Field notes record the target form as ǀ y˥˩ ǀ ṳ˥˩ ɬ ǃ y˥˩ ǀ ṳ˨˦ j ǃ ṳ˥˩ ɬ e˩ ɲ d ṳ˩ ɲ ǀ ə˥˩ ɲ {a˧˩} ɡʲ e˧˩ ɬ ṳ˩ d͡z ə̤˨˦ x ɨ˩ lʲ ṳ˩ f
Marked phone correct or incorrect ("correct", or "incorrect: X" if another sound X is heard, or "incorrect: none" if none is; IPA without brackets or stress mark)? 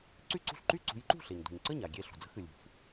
correct